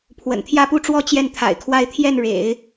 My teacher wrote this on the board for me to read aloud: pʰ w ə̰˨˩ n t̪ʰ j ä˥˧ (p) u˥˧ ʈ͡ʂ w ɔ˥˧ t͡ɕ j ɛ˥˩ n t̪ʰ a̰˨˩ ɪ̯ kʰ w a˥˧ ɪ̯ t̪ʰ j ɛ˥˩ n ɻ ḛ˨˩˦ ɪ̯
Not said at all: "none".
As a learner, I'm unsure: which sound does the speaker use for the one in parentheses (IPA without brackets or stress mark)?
p